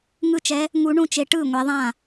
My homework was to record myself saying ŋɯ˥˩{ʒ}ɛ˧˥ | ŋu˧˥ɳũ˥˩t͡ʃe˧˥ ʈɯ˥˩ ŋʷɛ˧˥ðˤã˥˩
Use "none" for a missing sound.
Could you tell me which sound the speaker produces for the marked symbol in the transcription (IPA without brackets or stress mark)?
t͡ʃ